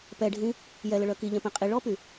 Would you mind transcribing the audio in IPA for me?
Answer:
p ɛ ɖʱ ĩ | j ɛ l ə ɭ œ k i ʎ ɛ̃ p ɛ̃ qʼ i ɭ ɔ p y

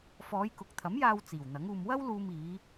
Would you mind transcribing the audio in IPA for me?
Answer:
f ɔː˨˧ j k ʊ˨ k̚ t̪ʰ ɐ˨˥ m j aː˧ w t͡s iː˨˩ w n̪ ɐ˨˥ ŋ uː˧ m w ɐ˥ w l uː˧ m iː˨˧

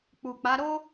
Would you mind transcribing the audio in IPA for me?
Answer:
k͡p u˨ k͡p a˨˦ ɾ o˦

